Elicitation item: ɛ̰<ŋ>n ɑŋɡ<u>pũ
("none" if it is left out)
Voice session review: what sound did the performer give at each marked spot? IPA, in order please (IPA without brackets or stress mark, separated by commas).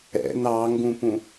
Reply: none, ũ